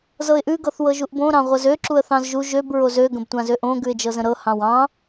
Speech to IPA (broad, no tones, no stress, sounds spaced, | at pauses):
z ɤ ɪ̯ ʔ ʉ ɡ ɤ θ w ɤ ʒ u ʔ b õ ɾ ɑ̃ ʁʷ ɤ z ø ǁ u ə̯ θ ɑ̃ z ʒ u ʒ ø b ɹ o z ø ɡ ə̃ b tʷ ã z ø ʔ õ ɡ ʉ ɪ̯ d͡ʒ ɤ z ə̃ ɾ ɤ h ɑ̃ w ɑ̃